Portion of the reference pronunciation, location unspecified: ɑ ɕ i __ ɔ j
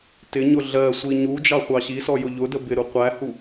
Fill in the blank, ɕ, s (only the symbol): s